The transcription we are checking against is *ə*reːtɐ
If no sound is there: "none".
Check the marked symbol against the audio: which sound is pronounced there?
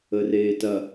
ə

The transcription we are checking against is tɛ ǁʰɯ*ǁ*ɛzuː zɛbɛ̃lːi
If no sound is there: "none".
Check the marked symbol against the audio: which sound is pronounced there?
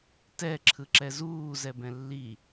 ǁ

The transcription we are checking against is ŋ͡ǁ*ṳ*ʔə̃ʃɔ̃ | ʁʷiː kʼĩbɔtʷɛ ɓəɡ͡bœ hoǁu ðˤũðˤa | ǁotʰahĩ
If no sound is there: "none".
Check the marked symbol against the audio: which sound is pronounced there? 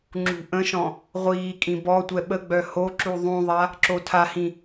ṳ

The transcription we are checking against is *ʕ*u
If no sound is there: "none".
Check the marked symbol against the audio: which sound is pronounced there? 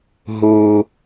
ɦ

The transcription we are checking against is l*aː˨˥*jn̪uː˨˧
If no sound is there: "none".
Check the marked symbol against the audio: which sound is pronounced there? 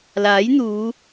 aː˨˥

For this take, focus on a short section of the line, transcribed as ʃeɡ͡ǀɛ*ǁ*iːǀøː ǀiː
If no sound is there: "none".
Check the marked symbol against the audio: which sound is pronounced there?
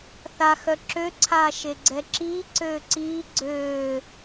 ǁ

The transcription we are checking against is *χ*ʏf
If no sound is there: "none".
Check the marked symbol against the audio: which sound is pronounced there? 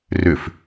r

